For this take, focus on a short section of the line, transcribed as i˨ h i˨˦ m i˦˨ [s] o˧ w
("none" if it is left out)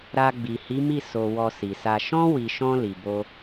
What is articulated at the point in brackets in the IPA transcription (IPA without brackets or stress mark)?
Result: s